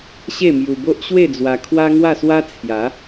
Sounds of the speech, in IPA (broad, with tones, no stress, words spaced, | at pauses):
ɕe˥˧mju˧bo˦ʔ ɕwe˥˧d͡zwa˧ kʰwa˦ŋwa˥˧swa˦ t͡sʰja˨˦